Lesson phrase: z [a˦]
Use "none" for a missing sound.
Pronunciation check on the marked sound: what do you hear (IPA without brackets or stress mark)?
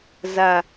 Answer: a˦